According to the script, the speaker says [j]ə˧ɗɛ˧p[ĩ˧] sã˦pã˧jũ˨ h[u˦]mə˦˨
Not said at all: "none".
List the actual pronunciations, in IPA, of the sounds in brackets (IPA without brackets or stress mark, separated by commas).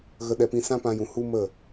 ɣ, ĩ˧, u˦